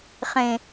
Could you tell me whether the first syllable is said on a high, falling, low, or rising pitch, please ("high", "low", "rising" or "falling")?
low